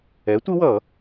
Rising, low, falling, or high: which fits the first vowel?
rising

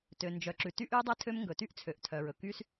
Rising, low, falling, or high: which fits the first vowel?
low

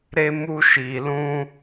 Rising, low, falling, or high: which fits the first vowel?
high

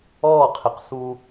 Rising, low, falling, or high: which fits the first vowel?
falling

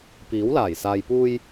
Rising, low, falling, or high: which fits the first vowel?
rising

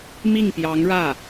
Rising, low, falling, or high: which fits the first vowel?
falling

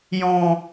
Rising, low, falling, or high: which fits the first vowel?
low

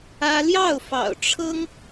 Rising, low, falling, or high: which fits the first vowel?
high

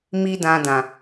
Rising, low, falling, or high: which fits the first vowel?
high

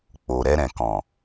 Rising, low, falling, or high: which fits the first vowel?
low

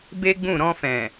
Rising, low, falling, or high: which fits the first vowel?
high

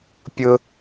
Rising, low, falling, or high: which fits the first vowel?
low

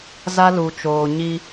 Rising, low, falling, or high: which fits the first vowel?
high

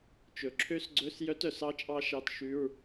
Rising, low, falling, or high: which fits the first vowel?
low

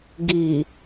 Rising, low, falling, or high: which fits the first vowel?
low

